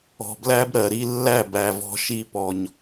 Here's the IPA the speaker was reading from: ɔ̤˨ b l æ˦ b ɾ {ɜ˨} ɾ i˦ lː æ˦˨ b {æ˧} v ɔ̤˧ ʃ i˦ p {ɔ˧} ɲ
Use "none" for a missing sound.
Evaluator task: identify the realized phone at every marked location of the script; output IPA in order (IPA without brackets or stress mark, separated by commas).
ɜ˨, æ˨, ɔ˧